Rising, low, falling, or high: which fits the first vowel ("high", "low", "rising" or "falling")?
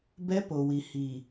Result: high